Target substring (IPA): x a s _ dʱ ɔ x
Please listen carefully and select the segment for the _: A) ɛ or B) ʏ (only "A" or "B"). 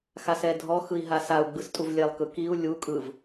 A